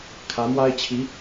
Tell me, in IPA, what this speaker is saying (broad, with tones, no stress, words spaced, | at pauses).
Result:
kʰä˧˥mwa˥ɪ̯t͡ɕʰi˧˥